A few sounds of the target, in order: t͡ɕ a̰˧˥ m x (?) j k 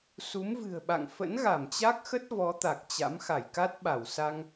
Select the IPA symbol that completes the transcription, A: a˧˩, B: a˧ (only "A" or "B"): A